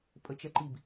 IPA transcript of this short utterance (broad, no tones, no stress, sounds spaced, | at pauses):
pʼ ə t͡ʃ ɛ ǃ i b